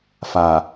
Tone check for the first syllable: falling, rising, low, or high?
low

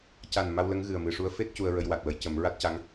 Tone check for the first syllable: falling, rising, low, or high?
low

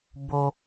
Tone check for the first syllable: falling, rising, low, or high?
low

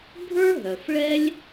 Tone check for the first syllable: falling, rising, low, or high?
high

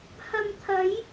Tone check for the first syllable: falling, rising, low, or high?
low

